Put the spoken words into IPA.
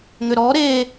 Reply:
ŋʏɾɔ ɾe

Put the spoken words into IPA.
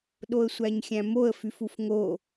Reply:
ɗoə̯sʷæɲxʲæ̃moə̯ fyfufŋo

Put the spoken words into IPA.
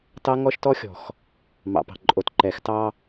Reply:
tɑ˦ŋɔ˦ʃtɔ˦xʲɔ̤˨x | mɑ̰˨pɑ̤˨ ǃʼo˨tǃɛ˨x tɑ˦

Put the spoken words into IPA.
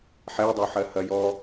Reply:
ħɛdˤɜħɜ hɐjɔ

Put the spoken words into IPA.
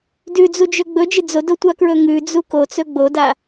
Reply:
dʉd͡zud͡ʒɵ ɡ͡bɵd͡ʒɨ d͡zodotʷakɹɵ ŋʉd͡zu kot͡sɵ ɡ͡boda

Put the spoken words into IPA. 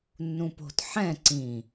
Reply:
nːũpo̤t ħɛ̃ ǀĩ

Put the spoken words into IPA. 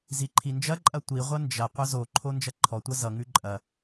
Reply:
ziǃʰind͡ʒɐǃʼɐ tʷiʁʷɐ nd͡ʒɐ qʷɐzoǃʰo nd͡ʒɐǃʰɔtʷɐ zʌŋʉ ǃʼɐ

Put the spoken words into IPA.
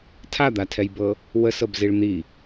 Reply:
tʰad̪atʰɛjbɤ | wəsɤbziɭ n̪i

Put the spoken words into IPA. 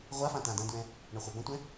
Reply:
ʁʷafã tãdɐ̃dwɛ̃ | ɳʌχʷabɐ̃tʷɛ̃

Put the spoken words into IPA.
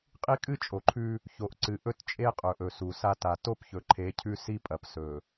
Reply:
qʼi˦kʼɨ˦ t͡ʃʼo˨ǃʰʉ˦ | ço˨ʔǀɨ˨ʔɵ˦t t͡ʃʼe˦qʼɵ˨ʔɵ˨ su˨sa˦ ta˨ to˦pçɵ˨ǃʰe˨˦ cʰʉ˦si˦pʼɐ˨p sɵ˨

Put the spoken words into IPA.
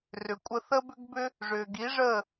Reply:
rʏ˩kʷʼə˧ θə˥bʏ˥ɡ bʏ˥ | ʐʏː˩ɡi˩˥ʐəː˥˩

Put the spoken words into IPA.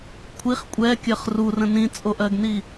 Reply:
kʷʰiχ kʷʼɛkʲɜχ rurə̃ nĩt͡sʼoʔɜɡni

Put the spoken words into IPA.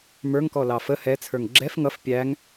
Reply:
mə˞ŋkɔlɑ fə hɛt͡sʰə˞ŋ ɡ͡ǁɛf ŋʌf pʲæŋ

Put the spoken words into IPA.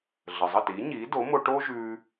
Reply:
ɮə˩zˤə˥˩ti˩˥ɲiː˩˥ do˩˥mo˧ʈoː˥ʒʉː˧

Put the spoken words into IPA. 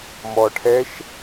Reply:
mɔʈʰɛʃ

